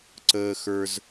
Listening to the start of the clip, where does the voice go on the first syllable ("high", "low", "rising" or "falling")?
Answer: high